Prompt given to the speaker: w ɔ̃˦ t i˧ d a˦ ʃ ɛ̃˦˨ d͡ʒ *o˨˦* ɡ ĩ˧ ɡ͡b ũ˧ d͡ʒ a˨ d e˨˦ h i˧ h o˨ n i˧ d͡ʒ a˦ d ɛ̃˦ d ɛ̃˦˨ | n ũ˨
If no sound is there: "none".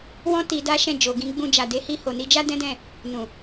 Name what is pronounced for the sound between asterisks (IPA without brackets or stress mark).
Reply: o˨